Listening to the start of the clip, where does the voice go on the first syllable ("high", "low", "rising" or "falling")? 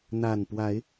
low